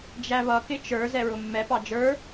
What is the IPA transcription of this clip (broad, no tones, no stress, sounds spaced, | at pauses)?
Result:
d͡ʒ æ β ʌ k ɪ t͡ʃ ə˞ z ɛ ɹ ʊ mː ɛ p ɑ d͡ʒ ə˞